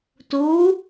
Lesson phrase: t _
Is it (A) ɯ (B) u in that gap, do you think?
B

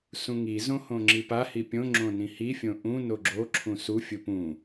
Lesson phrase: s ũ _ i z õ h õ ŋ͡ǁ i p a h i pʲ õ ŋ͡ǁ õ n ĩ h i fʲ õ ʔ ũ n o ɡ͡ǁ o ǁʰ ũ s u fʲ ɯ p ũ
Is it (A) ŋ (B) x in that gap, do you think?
A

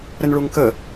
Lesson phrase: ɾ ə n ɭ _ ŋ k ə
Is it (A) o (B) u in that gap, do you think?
B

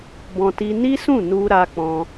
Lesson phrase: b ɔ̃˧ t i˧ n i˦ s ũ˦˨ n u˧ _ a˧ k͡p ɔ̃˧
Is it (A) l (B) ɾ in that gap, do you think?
B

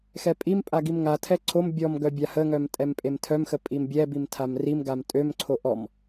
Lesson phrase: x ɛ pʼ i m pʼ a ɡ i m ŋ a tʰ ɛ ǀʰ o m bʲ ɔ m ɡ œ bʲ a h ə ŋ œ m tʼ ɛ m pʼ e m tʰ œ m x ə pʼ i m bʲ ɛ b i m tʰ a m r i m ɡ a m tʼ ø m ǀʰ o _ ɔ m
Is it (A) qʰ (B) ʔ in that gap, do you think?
B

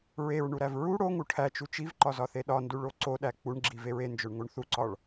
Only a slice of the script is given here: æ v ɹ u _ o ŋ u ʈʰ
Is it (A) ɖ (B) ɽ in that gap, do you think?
B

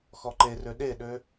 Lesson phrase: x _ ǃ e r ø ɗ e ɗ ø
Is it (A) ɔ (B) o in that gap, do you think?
A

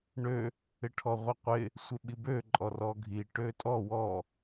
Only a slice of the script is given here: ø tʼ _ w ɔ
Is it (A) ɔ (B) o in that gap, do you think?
A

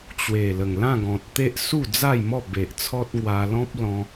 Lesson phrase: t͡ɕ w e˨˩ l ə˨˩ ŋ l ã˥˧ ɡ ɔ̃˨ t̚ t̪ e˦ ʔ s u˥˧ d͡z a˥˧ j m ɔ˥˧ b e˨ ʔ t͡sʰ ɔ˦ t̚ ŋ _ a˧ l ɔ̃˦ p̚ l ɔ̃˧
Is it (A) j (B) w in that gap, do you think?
B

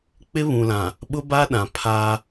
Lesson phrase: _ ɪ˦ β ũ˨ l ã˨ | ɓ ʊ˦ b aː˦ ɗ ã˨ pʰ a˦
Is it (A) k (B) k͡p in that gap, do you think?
B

